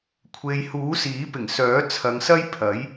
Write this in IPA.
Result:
kʷʰe˨j huː˨˥siː˨˥pɪ˨˩ŋsœː˨˥ t͡sʰɐ˨˧ŋsɐ˥j pʰɐ˨˥j

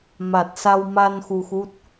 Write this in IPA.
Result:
ma˨˩t̚sa˧wma˧n xu˧xu˦˥t̚

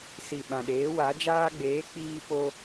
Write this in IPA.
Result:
si˨ɓã˨ɗeː˨˦ wa˨˦d͡ʒaː˦ ɡ͡beː˨˦ k͡piː˧po˧

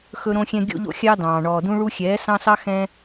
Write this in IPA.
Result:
xɵ˦ɾõ˦xʲɛ̃˦ ɡʲo̰˧ʎo̰˧ xʲɑ˦dɑ̃ː˨ ɳɔː˨dũ˧ɭu˧xʲɛː˨˦ sɑ̃˦sɑ˦ xɛ̃˦

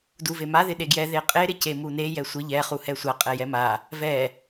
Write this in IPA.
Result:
duvema ðɪɗeɡjɛ ðeqʼe ɾɪcemune jɛsʷɪ ʎɛ χuhɛsʷa qʼɛjɛma | vɛ

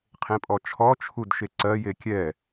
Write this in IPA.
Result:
qʰẽpʼɔt͡ʃʰɔ t͡ʃʰudʃeǀɜ jekʲɛ

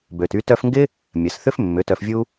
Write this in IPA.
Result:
bø˨ty˧ tœ˧fŋɡɪ˦ | mʲɐ˨sθʏ˦f mːʏ˨˦tœ˧fvʲu˦

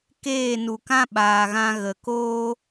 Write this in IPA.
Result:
keː˦˨nu˨kã˦ ɓaː˨ɣã˧ ɣə˨koː˦

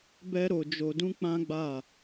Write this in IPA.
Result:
bɛ˦ɾo˧d͡ʒo˧dũ˦ k͡pã˦ɡ͡ba˦˨

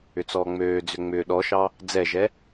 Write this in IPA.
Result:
ʏt͡sɔːŋ͡møːd͡zʏ ŋ͡mʏ ɗɔʃɑ | d͡zɛʒɛ

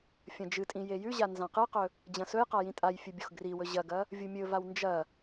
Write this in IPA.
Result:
fʲɐ̃d͡ʒɨtʼĩ jejʉʑa nzãqɨqɵ | d͡ʑɐ̃sɵjqa jĩtʼajfʲɨ bʲoxɡriwɵ ʑɐɡɐ | vʲumʲɵvaw nd͡ʒɐ

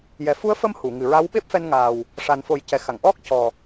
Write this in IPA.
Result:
jɛ˨˩fu˧˥ə̯fə˧m hu˨˩˨ŋɨ˨˩ɹa˧˥w ɓe˦˥p̚fɛ˧nŋaː˨˩w | ʂa˨˩n fo˨˩˦jcɛ˨˩xa˨˩˨ŋ ʔɔ˦˥k̚ cɔ˨˩

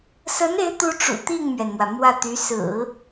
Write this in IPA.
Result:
sə˧˥ne˧˥ɪ̯t̪u˧˥ ʈ͡ʂṵ˨˩t̪i˥˩ŋmɥɛ˩nmwä˩ mwä˥˩t̪y˧˥ sɹ̩˨˩˦

